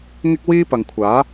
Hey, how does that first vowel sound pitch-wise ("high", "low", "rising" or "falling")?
high